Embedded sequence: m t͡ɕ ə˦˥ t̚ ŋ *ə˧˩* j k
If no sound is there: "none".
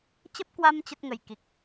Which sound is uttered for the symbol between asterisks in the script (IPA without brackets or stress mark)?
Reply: ə˧˩